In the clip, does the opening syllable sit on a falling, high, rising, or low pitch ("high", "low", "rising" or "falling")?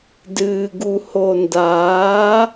low